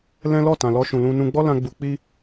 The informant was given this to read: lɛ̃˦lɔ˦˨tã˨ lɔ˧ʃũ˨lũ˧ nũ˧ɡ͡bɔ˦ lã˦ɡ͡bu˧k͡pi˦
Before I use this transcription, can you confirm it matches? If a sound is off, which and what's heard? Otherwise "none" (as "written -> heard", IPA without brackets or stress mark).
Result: none